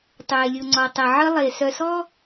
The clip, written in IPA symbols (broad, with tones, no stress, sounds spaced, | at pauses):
tˤ ʏː˨ e̯ lʲ u˨ ŋ͡ǀ ɔ˨ tˤ e˨ ʕ ɘ˦ lˠ e˨ s œ˨ s ɔ˦